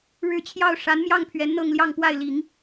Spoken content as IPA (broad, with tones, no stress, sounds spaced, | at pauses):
ɻ ɻ̩˥˧ t͡ɕʰ j ɑ˥˩ ʊ̯ ʂ a˧˥ n m j ɑ˥˩ ŋ pʰ ɥ ɛ˧˥ n n̪ ɤ˥˧ ŋ l j ɑ˥˧ ŋ p w a˥˩ ɪ̯ l i˨˩˦ ŋ